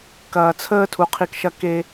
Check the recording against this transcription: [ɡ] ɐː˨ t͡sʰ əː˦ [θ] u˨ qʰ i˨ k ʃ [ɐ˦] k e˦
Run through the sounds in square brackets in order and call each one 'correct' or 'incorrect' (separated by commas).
incorrect, incorrect, correct